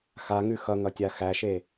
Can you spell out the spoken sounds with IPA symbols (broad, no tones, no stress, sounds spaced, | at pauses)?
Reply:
x a ŋ ʉ x ʌ ŋ ʌ tʲ a x æ ʃ e